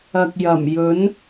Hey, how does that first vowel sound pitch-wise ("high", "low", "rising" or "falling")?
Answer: low